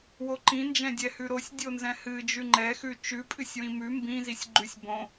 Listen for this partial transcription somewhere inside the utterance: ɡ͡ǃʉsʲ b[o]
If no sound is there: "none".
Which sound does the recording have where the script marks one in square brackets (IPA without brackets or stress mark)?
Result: õ